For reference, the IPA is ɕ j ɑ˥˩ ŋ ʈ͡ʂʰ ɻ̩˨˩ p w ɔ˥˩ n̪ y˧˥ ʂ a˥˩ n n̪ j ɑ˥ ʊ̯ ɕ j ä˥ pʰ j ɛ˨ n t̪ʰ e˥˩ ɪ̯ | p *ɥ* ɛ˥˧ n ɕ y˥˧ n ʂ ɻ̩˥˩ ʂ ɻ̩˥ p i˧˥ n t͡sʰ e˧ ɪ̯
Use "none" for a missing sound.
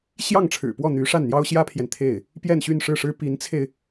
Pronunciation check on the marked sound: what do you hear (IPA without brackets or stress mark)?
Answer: j